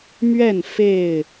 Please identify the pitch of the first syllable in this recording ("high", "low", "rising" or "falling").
falling